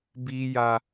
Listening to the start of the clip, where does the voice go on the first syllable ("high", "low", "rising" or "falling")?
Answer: high